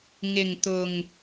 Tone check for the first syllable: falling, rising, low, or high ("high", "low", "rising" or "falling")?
low